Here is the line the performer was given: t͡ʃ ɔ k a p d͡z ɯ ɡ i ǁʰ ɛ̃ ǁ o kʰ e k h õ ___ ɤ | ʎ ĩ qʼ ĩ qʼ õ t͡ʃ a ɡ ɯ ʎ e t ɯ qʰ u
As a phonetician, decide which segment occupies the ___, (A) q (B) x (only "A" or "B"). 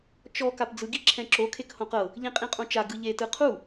A